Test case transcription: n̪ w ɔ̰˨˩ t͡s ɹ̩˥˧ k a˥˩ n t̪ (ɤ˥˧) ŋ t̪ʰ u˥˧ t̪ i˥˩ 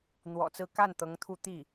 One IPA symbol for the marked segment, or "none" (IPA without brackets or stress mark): ɤ˧˥